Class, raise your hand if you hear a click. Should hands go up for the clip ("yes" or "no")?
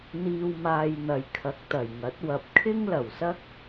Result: no